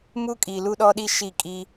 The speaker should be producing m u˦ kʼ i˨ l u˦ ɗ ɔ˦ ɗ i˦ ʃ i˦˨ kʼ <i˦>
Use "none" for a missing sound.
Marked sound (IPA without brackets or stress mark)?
i˦